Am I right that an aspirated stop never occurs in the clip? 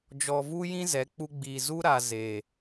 yes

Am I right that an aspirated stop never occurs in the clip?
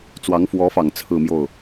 no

